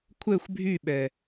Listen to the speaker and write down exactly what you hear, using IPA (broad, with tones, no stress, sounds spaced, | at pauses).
kʷʰ ɛ˦˨ xʷ bʱ y˦˨ ɓ ɛ˨